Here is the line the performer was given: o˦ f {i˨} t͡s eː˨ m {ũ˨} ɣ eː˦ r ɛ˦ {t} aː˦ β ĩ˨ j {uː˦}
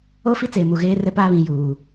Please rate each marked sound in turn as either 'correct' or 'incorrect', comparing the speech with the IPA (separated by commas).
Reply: incorrect, incorrect, incorrect, incorrect